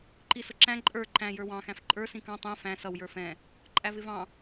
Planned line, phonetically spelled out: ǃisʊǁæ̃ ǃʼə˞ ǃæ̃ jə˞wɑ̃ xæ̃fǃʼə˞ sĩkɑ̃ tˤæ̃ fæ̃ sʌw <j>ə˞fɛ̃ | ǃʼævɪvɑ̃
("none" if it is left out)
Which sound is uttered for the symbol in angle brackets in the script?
j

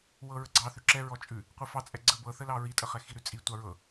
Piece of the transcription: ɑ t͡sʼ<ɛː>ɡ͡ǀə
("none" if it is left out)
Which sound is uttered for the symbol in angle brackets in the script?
ɛ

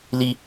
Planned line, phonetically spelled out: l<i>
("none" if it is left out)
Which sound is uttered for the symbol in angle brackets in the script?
i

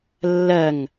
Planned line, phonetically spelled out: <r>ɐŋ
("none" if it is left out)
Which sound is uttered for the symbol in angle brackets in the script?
lː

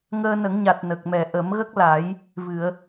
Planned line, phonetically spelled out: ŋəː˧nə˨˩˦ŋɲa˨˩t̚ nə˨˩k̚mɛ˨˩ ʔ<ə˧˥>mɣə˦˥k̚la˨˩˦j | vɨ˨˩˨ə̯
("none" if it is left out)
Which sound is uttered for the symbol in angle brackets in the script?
ə˨˩˦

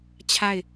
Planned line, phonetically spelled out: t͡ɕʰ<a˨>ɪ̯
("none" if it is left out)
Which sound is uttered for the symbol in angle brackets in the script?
a˦˨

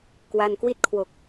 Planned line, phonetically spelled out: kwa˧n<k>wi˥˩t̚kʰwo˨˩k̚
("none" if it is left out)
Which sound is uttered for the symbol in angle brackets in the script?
k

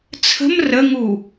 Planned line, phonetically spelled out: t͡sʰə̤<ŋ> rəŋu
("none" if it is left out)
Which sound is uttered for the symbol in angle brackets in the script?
m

